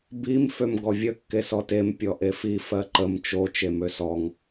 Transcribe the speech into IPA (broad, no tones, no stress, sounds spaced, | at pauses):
b i m f ø m ɡ ɔ vʲ ə kː e s ɔ t e m pʲ ɔ ʔ e f i f ɜ ǃ ə m t͡ʃ o t͡ʃ e m ø s ɔ ŋ